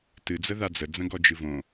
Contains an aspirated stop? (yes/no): no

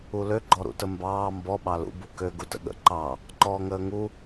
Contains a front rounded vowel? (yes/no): yes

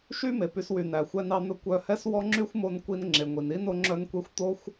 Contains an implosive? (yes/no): no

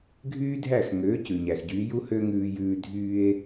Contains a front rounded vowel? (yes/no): yes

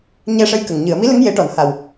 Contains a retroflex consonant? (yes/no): yes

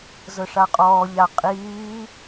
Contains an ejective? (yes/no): yes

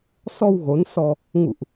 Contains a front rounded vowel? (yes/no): no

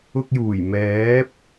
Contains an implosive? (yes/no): no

